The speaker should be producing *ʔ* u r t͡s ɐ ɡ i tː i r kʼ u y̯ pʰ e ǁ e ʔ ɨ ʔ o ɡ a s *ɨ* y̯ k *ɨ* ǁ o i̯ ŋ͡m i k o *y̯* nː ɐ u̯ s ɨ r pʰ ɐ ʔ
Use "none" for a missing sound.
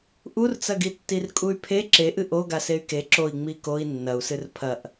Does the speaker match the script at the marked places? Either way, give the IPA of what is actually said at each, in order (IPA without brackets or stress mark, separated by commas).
ʔ, e, e, i̯